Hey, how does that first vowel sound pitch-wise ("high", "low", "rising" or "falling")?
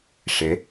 rising